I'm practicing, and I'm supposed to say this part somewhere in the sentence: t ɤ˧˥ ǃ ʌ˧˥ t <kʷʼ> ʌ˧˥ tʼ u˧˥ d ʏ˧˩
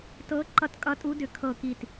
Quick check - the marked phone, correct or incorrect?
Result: incorrect